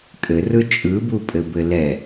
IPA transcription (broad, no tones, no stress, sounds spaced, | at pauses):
kʼ ɘ r ɯ t͡ʃʼ ɯ b u pʼ ɘ b ɘ l ɛ